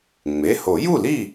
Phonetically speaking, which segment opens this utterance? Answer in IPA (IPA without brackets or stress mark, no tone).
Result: ŋ͡m